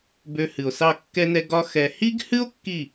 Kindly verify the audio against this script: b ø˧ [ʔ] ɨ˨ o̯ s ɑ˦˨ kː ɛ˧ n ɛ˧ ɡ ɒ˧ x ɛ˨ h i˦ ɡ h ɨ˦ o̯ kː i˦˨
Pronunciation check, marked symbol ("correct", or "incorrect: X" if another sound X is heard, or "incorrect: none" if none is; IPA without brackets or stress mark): incorrect: h